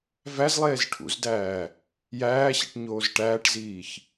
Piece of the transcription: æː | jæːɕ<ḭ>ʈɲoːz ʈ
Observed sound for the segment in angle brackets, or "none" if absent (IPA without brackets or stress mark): ḭ